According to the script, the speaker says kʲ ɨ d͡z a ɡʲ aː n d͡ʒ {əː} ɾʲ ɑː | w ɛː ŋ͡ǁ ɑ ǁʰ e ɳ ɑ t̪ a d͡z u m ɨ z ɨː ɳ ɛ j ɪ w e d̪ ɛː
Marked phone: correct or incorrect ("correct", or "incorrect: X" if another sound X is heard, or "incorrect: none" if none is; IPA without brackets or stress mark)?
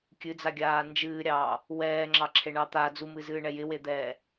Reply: incorrect: ɨː